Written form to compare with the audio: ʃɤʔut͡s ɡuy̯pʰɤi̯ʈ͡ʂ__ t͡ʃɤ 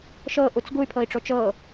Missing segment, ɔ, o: o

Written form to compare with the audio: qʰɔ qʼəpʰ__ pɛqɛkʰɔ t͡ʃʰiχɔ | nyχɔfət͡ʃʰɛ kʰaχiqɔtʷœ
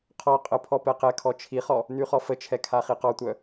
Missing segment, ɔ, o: ɔ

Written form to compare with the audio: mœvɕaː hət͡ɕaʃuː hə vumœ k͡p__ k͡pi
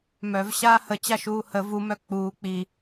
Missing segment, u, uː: uː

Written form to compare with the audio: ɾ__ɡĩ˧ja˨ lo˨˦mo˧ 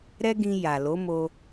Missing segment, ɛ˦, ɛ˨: ɛ˦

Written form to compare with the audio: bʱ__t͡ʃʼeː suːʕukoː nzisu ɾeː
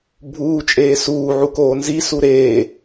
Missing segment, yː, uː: uː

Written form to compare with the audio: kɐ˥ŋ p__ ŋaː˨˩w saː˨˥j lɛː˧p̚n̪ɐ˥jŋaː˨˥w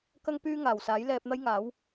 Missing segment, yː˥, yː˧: yː˥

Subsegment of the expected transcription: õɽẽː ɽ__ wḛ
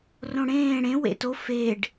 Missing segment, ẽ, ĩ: ẽ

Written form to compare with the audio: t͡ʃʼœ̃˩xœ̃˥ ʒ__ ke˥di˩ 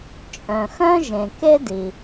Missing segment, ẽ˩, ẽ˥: ẽ˩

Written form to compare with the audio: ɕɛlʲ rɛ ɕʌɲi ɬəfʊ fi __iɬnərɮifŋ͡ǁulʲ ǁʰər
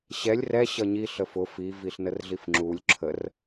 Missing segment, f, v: v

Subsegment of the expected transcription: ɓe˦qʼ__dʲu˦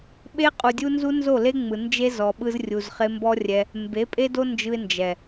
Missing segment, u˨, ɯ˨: u˨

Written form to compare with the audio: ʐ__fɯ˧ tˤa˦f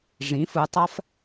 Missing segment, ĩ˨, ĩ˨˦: ĩ˨˦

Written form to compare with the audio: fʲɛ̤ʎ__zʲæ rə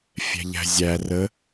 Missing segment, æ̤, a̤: æ̤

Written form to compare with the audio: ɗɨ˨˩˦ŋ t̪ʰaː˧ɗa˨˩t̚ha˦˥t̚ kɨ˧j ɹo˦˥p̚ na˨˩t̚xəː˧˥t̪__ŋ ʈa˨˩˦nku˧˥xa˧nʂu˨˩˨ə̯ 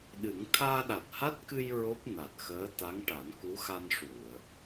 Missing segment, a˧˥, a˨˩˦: a˧˥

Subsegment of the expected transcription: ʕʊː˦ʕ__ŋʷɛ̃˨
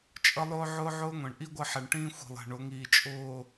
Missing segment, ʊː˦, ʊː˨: ʊː˦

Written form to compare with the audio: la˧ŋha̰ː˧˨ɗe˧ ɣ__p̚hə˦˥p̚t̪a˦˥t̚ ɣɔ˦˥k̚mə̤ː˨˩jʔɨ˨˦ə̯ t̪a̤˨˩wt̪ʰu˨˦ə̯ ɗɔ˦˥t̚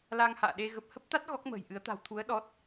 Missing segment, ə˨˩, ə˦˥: ə˨˩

